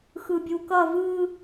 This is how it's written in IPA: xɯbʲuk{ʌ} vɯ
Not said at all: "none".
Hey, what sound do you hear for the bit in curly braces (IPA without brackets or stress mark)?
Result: ʌ